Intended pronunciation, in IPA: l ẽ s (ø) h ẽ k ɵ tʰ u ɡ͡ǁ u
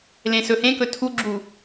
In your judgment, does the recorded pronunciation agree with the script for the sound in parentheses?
no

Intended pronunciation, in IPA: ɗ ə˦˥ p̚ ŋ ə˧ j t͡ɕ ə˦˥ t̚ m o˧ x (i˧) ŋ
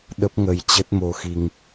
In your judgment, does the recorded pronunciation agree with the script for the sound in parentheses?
yes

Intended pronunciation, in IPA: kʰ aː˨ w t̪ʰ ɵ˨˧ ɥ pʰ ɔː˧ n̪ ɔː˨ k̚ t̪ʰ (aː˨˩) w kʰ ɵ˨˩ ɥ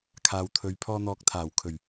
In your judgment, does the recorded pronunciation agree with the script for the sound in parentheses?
yes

